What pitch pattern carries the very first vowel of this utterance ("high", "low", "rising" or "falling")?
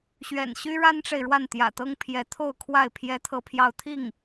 low